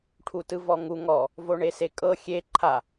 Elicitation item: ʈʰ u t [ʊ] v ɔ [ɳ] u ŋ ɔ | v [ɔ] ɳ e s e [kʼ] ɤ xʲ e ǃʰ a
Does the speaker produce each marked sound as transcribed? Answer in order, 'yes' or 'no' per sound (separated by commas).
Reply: no, no, no, yes